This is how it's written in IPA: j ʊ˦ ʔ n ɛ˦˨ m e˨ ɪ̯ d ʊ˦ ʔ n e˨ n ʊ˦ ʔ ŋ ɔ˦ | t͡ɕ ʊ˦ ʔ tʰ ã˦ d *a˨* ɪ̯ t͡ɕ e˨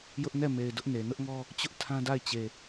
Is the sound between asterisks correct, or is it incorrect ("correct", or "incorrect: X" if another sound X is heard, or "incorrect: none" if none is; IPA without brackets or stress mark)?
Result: incorrect: a˦˨